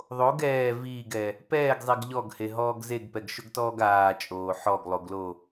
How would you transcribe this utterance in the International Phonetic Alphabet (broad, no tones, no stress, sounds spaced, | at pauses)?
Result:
ðˤ o ɡ ɛː v iː ɡ ɛ | p ɛː ɡ zˤ i ɡ ʎ ɔ ɡ h e ɦ ɔː ɡ z e ɡ p ɛ ɡ ʃ ʊ ɡ t ɔː ɡ aː t͡ʃʼ oː ħ ɔ ɡ lˠ o ɡ l o